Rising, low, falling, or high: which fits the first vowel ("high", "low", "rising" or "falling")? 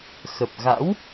low